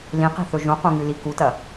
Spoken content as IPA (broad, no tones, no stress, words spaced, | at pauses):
lĩqi̤θɵ ʒũqũŋʉli kutɐ